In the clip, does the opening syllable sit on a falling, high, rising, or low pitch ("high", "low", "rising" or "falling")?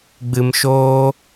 low